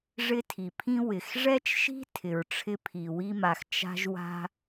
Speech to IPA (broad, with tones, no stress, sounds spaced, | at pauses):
ʐ ɪ˥ tʰ i˩ pʰ ĩ˥ w ɪ˩ x ʐ ɛ˥ t͡ʃ ʃ i̤˥ tʰ ɪ˩ ɹ ʈ͡ʂʰ ɪ˥ pʰ i˩ w i˥ m a˩ x t͡ʃ a̤˥ ʒ w a̤˥